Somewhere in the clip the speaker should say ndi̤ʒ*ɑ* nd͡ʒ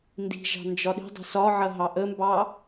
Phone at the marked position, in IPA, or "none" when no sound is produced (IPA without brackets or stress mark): ɑ̤